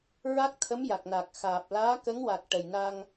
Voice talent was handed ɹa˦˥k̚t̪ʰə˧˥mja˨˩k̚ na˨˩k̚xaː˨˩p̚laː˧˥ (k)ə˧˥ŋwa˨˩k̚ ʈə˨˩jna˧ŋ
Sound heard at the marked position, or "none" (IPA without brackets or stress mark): k